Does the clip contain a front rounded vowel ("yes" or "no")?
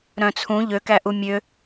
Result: yes